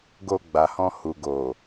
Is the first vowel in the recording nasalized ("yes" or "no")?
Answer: no